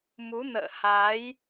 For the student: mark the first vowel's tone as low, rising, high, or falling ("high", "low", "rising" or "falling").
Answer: rising